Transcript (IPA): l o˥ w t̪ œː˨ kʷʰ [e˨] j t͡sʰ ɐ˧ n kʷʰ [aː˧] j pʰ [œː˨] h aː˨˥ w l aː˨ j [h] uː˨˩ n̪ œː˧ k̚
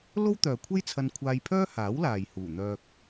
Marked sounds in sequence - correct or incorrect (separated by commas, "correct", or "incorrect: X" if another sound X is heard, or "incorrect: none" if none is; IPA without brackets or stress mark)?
incorrect: e˥, correct, incorrect: œː˥, correct